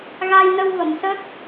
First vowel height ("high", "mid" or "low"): low